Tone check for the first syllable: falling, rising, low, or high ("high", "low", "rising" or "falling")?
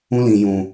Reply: high